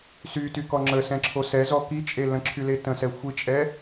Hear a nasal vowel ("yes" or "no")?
yes